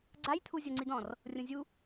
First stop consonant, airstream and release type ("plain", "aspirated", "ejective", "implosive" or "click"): click